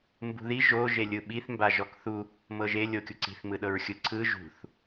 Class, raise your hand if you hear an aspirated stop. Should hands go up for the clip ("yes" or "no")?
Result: yes